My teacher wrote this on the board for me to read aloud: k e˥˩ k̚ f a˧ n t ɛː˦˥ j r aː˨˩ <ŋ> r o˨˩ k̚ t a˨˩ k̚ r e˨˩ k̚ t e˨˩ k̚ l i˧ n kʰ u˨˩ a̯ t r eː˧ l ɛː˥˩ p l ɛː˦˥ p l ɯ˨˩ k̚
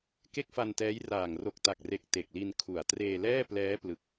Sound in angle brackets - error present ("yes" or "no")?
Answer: no